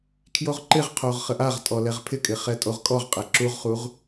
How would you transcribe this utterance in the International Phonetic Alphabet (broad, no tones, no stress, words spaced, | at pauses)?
kʰjoʁǃɪʁqʰoʁ χəʔaʁtʼɔ lɛʁpʰɪkʼɪ χɛtʼoʁkʼɔʁqʼɛ ǁuʁχuʁ